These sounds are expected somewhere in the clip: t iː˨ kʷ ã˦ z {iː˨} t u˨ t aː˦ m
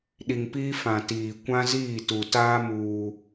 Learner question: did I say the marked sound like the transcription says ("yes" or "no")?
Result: no